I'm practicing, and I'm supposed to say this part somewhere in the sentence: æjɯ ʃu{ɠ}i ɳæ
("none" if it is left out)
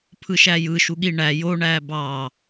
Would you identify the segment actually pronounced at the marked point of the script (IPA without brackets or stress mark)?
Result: ɠ